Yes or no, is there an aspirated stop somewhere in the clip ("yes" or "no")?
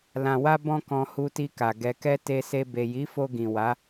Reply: no